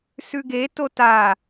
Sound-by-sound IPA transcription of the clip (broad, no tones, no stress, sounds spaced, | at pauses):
s ʉ ɡ e t o t a